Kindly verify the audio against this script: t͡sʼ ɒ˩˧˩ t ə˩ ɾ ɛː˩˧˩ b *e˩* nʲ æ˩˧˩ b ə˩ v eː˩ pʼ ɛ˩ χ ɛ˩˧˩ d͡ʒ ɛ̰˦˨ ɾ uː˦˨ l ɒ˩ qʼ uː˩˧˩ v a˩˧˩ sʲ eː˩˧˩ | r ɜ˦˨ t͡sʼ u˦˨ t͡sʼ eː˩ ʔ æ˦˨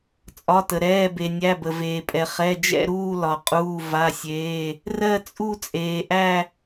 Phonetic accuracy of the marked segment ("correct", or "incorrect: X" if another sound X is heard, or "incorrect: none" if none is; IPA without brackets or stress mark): correct